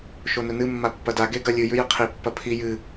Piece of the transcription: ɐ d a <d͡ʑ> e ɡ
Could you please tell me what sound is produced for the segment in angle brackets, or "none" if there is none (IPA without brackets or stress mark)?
ɡ